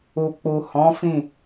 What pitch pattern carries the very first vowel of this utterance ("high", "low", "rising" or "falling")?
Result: low